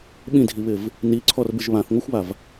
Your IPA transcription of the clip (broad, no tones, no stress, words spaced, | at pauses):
ɓĩdʱiβɪv | niǀʰɔrbɪʒ βãθŋʷaxʷβav